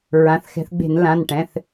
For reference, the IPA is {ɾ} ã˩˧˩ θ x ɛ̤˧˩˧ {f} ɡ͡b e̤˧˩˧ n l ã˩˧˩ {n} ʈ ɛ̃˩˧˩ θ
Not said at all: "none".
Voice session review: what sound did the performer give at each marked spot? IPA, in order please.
ɹ, θ, n

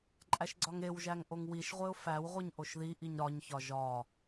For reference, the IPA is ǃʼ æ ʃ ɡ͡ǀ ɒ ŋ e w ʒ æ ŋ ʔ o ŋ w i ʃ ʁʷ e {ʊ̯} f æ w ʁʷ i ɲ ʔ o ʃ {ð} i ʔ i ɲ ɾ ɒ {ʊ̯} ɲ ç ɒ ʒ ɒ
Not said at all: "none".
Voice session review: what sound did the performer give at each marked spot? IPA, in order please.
ʊ̯, ð, none

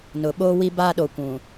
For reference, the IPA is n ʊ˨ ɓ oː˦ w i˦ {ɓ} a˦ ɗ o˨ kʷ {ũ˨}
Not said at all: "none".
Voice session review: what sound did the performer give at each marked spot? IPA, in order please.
b, ũ˨

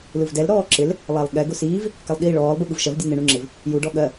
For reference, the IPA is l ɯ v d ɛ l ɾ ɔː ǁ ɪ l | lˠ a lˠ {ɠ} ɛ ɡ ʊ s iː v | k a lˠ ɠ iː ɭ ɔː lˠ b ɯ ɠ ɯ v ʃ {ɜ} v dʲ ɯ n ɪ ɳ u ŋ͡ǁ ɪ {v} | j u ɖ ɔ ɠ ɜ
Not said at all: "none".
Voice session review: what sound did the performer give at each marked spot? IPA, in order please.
ɠ, ɜ, v

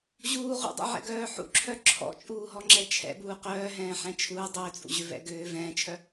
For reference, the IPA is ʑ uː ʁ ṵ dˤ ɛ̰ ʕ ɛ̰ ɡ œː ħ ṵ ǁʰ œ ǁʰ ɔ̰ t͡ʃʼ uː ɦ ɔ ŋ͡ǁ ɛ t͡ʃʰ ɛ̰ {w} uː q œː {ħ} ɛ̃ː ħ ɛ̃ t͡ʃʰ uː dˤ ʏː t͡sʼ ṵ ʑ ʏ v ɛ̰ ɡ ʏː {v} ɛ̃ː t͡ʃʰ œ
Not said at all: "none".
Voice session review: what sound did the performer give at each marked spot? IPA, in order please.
b, ɦ, v

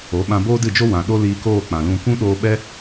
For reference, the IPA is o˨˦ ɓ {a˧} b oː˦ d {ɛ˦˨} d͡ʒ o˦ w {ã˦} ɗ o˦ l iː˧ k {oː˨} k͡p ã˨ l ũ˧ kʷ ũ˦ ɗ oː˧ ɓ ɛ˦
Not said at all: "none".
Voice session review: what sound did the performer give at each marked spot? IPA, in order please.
ã˧, ɨ˦˨, ã˨, oː˦˨

